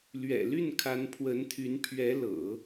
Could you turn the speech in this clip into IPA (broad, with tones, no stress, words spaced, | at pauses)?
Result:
lɥɛ̰˨˩ly˥˩n kʰa˧˥npʰwə˧˥nt̪ʰy˧˥n pʰɥɛ˧˥lɤ̰˨˩˦